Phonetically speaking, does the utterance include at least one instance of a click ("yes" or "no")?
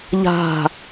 no